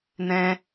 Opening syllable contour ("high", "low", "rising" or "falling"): high